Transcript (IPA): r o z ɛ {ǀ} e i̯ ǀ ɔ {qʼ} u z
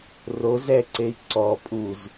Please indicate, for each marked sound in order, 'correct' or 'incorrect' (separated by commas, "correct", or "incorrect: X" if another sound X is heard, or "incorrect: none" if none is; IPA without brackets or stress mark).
correct, incorrect: pʼ